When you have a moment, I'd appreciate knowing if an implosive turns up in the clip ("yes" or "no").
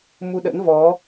yes